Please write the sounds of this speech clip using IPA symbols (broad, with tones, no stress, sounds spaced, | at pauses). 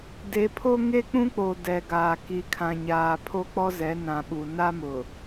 d e˨˦ pʰ o˦ ŋ e˦ k͡p ũ˦ k͡p o˨ d ɛ˨ ɡ aː˨ k i˨ kʰ ã˨ ɲ aː˨ pʰ o˦ k͡p ɔ˦ z ɛ˨˦ n ã˨ ɓ u˨ n a˦ m ʊ˨